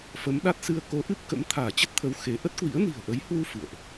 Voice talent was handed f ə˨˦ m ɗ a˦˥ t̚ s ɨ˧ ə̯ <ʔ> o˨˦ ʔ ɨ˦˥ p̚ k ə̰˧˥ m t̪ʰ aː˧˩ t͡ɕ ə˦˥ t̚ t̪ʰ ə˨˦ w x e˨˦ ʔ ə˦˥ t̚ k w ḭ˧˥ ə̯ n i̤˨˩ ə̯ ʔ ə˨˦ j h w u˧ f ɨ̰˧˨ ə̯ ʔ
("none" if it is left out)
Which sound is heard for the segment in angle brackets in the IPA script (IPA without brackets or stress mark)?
k